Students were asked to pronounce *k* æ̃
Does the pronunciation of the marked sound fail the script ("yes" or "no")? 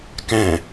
no